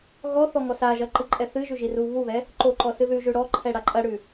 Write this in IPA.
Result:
ɣ ɔ θ ɔ ŋ ɔ s a ʒ ɐ ǃ ɨ ǃʼ ɛ θ ɨ ʒ ʉ ʒ i r u β u β ɛ | ǃ o ǃ ɔ s ɨ ð ʉ ʒ ʉ ɽ ɔ ǃʰ ɛ ɽ a ǃʼ ɐ ɽ ʉ

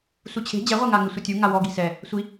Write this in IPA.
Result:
s u t͡ɕʰ e̤ d͡ʑ ɛ ʁʷ ɛ ŋ a ŋ ɪ sʷ ɪ tʲ u ŋ a w ɔ ɡ i̤ s ɛ | sʷ i

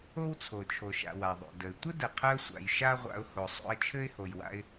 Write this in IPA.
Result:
o˦ w t͡sʰ o˨ t͡ʃʰ o˨ ʃ a̰˨ w a˨ ðˤ o̰˨ d ə˨ ɪ̯ tʷ ə˦ d ə˨ qʰ ɜ˧ sʷ a̰˨ j ʃ a˦ ʁʷ a̰˧ ʊ̯ h o˨ sˤ o̰˧ ə̯ t͡ʃʰ ɘ˦ ɪ̯ h o˨ j w a̰˧ ɪ̯

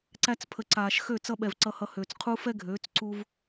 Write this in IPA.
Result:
ǀ æ˧ t͡s pʰ ə˨ ǀ aː˨ ʃ x ø˦˨ t͡s ʌ˧ ɓ ɛ˨ v ǀ ʌ˧ h ʌ˧ h øː˨ t͡s qʰ u˦ f ɛ˦ ɡʱ øː˨˦ t͡s ǀ u˧ v

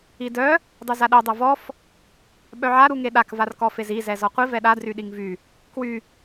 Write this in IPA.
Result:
i d œ | dˤ u z a ɗ ɛ dˤ ɛ v ɔ f | ɓ œ ʕ a ɾ u ŋ e ɗ a k v a r k ɔ f e z i z ɛ z ɔ qʷ i v ɛ ɗ a d r y ɗ i ŋ v y | k w y

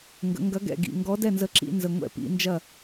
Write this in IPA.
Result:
ŋ ɡ ə̰˩˧ ŋ ɡ ɐ˨˥ ɡ ɛ̰˨˩ ɡ ḭ˨˩ ŋ ɡ ɔ˨˥ d ɛ˥˩ n z ə˨˥ ǁ ḭ˧˩˧ n z ə˨˩ ŋʷ ɛ̰˧˩˧ p ḭ˩˧ n d͡ʒ ɐ˥˩

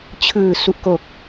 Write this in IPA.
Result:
t͡ɕʰ ɯː˨˩ s u˨˩ ʔ k o˨˩ k̚

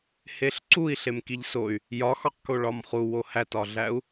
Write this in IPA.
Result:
h e ɬ ǀ u i̯ ɬ e m k i ʎ s o y̯ | j ɒ x ɒ q k o ɭ ɒ m χ u w o h æ t ɒ ɮ æ u̯

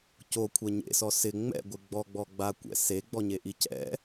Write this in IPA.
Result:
c o kʷʰ ɛ ɲ ḛ s ɔ s ɪ ŋ͡m ɛ̰ ɡʷ ɪ ɡ͡b ɔ ɡ͡b ɔ ɡ͡b a kʷ ɛ̰ s e ɡ͡b ɔ ɲ e ʔ i c ɛ̰

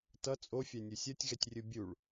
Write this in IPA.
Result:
t ʌ t͡sʼ o fʲ a nʲ u sʲ ʌ tʲ ɣ ɛ tʲ rʲ ɯ bʲ u ɭ

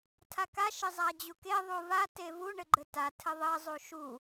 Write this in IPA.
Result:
tʰ a k a ʃ ɪ zˤ a d͡ʑ u k e ðˤ u v a t e v u ɳ ɘ ɡ͡ǃ ɘ t a tʰ ɘ ðˤ ɘ zˤ u ʃ u

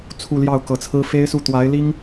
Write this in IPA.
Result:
t͡sʰ u˥˧ l j ɑ˥˩ ʊ̯ k ɤ˧˥ t͡sʰ ɹ̩˥ f e˥ ɪ̯ s u˥˩ t̪ w a˧˥ ɪ̯ l i˥ ŋ

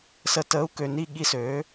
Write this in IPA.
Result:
s ə˧ t əː˦˥ u̯ k ø˧ n i˥˧ ɠ i˦˥ s øː˨˥

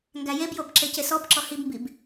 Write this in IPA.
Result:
ŋ ɡ æ j e b j o b ǁ e c e s ɔ b ǁ ɔ h i b m b i b

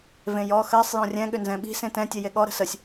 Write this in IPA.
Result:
v ẽ j ɔ x ɜ sˤ j ɔ̃ rʲ ɛ̃ ɠ ʏ n z ɛ̃ ɓ i̤ s ẽ t ɛ̃ tʲ e j e ɠ ɔ ɾ ə̤ s ə sʲ

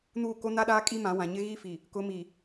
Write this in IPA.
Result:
n uː˦˨ k o˦ n a˦ ɗ aː˦ kʼ i˦ m ã˨˦ w ã˨ ɲ ɪ˦ ɣ i˦ f i˨ | k ʊ˨˦ m i˨

